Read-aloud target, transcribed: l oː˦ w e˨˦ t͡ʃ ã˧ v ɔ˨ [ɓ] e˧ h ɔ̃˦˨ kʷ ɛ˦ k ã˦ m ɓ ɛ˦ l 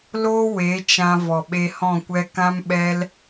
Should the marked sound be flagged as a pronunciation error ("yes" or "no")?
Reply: no